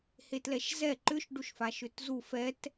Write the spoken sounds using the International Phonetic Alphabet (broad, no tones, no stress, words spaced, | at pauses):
hetlɛʃzɛ ǃʏʃ ɖuʃfaʃʏtzu fɛt